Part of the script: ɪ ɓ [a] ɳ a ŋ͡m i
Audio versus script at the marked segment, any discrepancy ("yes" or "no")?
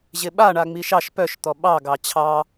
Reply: no